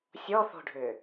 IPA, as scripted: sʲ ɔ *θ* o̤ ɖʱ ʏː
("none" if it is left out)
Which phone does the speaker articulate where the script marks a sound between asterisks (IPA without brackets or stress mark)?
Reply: θ